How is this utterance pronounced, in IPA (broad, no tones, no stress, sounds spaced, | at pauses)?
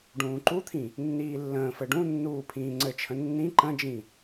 ɖ ũː ǃ u t̪ʰ ĩ | nː iː lː ə̃ː f ɘ ɖ ũ nː uː pʰ ĩː ŋ͡ǀ ɘ t͡ʃʰ ə̃ nː ĩ ǃ ə̃ d͡ʒ ĩ